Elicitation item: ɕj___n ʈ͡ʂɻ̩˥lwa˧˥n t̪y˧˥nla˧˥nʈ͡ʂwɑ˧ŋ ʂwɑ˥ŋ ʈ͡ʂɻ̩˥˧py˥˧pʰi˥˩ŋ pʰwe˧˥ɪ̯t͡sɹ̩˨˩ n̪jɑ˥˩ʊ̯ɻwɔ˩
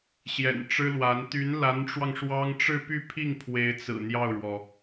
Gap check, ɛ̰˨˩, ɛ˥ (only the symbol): ɛ̰˨˩